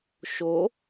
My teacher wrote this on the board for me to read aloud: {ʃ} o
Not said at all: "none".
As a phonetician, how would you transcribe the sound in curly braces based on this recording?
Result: ʃ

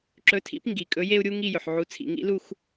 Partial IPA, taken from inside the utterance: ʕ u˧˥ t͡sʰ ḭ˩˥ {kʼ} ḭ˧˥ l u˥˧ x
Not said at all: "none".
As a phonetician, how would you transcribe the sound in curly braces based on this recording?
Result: ŋ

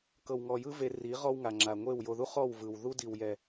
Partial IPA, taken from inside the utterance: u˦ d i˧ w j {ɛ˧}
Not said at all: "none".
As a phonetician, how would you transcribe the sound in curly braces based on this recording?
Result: ɛ˧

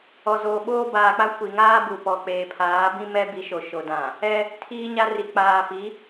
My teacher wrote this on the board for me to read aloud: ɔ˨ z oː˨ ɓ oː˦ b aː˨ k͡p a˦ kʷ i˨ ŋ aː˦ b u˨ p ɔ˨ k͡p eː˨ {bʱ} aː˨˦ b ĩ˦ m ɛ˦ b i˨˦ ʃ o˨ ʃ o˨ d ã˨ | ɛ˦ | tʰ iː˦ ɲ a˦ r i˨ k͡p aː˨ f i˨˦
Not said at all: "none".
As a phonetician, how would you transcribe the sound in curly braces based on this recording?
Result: pʰ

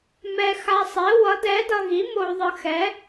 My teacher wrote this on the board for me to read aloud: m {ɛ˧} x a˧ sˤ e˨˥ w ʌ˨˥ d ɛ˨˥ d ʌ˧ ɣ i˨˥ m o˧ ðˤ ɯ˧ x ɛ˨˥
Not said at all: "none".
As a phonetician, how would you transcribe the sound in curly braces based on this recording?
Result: ɛ˧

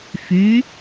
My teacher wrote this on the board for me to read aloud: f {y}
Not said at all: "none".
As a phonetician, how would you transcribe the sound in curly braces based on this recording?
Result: y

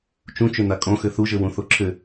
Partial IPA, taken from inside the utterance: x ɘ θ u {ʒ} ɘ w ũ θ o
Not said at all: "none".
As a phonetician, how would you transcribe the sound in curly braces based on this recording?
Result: ʒ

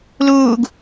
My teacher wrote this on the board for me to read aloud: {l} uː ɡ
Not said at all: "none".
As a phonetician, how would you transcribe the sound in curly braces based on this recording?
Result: l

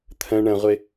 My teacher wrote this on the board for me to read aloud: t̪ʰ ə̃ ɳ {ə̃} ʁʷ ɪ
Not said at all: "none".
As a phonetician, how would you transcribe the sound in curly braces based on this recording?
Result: ə̃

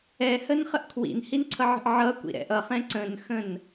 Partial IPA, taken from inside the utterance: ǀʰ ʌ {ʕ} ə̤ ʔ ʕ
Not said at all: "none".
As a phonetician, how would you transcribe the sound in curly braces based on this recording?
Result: ʕ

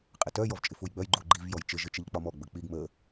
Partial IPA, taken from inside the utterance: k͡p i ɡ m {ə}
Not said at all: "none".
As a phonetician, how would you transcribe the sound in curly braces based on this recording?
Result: ə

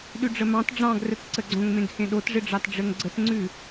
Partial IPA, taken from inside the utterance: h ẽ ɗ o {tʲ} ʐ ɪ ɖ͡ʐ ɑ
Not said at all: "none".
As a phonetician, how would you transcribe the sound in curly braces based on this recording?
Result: t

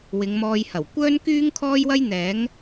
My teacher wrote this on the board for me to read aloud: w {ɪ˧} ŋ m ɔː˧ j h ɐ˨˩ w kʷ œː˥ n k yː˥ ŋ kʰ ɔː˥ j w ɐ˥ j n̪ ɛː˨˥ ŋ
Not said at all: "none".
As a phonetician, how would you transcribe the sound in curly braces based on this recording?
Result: ɪ˨˧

